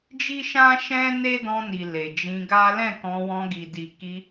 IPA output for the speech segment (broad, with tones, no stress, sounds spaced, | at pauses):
d͡ʒ i˦ ʃ ã˦ ʃ ɛ̃˦ n e˦ d ɔ̃˧ n i˨ l e˨ d͡ʒ ĩ˧ ɡ a˦ l ɛ̃˦˨ k ɔ̃˧ w ɔ̃˧ ɡ i˨ d i˨ k i˧